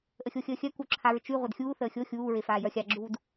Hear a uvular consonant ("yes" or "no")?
yes